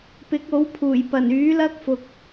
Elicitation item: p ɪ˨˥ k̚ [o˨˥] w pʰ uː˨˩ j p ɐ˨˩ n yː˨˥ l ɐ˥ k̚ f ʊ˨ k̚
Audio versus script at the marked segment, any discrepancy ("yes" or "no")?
no